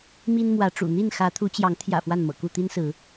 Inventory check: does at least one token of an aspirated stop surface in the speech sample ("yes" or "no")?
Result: yes